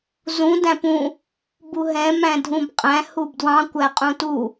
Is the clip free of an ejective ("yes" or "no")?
no